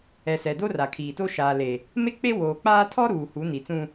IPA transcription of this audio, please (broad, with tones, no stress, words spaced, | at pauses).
ɛ˨sɛ˨ do˦ra˨kʰiː˨to˦ ʃaː˨le˨ | me˦k͡pe˦ woː˨k͡paː˦ tʰɔ˦ ɾuː˨ hu˨˦ni˨t͡sũ˦